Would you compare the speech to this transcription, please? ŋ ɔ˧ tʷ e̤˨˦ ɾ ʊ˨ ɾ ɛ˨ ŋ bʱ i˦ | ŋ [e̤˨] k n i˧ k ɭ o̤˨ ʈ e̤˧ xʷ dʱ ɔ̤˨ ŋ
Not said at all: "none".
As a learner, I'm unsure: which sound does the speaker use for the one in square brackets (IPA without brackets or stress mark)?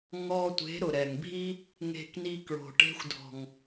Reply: e̤˧